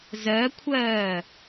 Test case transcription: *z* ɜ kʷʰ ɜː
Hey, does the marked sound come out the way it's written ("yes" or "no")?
yes